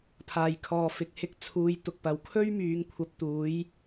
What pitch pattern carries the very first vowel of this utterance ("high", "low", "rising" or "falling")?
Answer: low